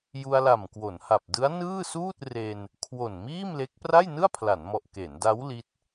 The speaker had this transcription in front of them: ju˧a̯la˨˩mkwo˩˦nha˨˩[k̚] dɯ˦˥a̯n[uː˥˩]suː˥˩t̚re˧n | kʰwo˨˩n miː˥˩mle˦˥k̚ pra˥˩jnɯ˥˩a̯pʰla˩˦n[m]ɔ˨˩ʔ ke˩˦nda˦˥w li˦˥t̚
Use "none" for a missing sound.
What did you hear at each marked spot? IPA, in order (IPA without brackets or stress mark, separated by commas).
p̚, ɯː˥˩, m